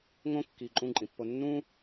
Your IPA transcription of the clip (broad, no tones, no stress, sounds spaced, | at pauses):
ŋ õ kː i ǃʼ ũ ǃʼ ĩ pː o nː ũ